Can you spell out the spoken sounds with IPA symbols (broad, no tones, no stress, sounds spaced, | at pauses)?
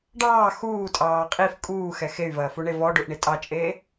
ɖ ɑː x uː tʼ ɑː qʼ i f kʼ uː x ɛ x e y̯ v ɐː f u ɳ e v ɔ ɖ u ʔ ɳ i tʼ ɑ t͡ʃʼ eː